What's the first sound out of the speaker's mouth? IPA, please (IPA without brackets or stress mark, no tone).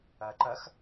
ɜ